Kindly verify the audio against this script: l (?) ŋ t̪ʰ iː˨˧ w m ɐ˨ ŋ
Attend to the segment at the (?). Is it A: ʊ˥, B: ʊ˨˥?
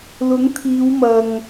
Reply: B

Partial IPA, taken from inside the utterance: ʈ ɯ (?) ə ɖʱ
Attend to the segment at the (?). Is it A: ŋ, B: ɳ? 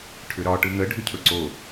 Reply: A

